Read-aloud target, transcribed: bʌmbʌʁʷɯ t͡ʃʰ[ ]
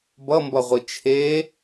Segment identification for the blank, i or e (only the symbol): e